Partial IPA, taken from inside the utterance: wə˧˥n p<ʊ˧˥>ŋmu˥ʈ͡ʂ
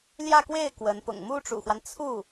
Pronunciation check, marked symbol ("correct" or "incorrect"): incorrect